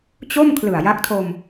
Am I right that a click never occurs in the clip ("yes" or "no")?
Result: yes